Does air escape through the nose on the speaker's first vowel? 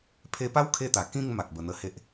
no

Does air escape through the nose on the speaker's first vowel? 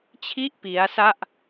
no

